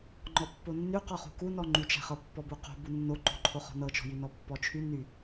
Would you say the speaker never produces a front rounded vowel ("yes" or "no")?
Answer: no